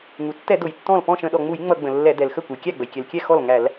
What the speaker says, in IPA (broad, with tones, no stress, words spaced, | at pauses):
ŋu˩ tːɛ˧˩˧dʊ˩j tːɔ̃˥˩l pɔ̃˥˩ʃə̃˧˩˧ɗɔ˩ŋ͡mu˧˩˧j ŋ͡mʌ˧˩˧ɡ͡bə̃˩lːɛ˧˩˧ dɛ˩l xə˥˩kʷɛ˩jkʲæ˥˩ɡ͡bə˩j kʲɛ˩lkʲɛ˥˩ xɔ˥˩lŋæ˧˩˧l